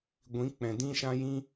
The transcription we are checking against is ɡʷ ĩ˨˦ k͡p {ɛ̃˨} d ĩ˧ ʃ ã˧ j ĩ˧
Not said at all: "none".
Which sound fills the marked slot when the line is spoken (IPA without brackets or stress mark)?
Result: ɛ̃˨